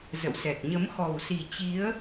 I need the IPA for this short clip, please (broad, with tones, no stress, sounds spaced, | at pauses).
z ə̰˧˨ w s ɛ˨˩ k̚ ɲ ə˨˦ m x ɔ˨˩ w s i˨˩ t͡ɕ i˨˦ ə̯